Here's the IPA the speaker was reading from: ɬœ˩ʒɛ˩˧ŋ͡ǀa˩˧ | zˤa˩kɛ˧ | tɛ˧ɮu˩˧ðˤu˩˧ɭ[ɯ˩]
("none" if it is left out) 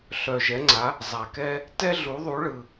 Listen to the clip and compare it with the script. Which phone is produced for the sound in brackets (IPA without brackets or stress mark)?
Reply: ɯ˩